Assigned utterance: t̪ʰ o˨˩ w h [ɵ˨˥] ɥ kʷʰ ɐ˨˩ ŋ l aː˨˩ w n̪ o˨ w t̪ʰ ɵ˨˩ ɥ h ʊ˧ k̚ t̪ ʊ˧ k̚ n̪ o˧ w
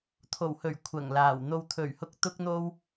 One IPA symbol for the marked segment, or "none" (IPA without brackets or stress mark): ɵ˨˩